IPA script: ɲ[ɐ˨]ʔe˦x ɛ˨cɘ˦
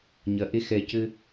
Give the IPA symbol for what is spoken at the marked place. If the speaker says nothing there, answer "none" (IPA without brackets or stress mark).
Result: ɐ˨